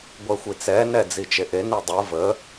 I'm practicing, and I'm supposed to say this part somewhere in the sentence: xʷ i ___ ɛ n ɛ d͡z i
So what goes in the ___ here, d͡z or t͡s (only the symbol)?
t͡s